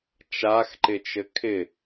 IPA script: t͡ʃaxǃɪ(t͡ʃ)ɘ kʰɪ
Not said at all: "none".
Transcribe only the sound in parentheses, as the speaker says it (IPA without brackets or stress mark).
t͡ʃ